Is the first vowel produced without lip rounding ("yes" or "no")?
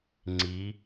yes